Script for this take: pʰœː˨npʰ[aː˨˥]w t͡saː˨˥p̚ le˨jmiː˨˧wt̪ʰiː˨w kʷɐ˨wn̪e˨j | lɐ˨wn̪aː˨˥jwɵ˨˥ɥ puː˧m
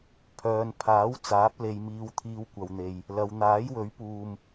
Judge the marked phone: correct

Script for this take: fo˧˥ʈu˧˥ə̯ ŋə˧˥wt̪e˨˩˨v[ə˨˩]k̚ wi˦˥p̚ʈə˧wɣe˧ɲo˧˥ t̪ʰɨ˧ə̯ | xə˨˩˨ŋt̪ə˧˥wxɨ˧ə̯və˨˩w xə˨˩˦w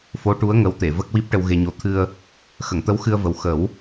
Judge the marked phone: incorrect: ə˦˥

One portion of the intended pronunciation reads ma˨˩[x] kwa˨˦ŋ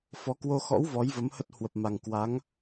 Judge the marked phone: incorrect: ŋ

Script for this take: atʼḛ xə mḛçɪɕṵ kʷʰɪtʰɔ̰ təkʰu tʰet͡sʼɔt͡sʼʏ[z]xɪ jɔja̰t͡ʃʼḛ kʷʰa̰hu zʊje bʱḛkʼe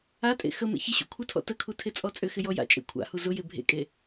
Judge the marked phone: incorrect: none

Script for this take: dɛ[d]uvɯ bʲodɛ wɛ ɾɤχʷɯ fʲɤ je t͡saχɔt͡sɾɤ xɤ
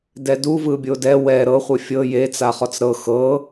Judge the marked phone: correct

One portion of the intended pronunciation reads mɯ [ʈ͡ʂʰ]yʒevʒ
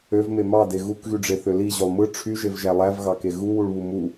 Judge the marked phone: correct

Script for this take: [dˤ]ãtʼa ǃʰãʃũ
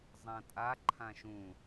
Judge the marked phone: incorrect: zˤ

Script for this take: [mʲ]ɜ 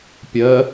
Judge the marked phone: incorrect: pʲ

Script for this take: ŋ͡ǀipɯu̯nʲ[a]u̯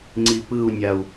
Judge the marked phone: correct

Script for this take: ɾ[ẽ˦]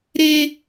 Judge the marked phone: incorrect: e˦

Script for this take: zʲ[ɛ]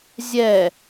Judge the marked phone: correct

